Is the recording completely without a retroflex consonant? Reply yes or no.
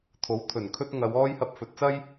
yes